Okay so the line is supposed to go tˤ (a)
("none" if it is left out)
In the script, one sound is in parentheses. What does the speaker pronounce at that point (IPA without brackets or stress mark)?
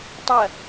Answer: ɐ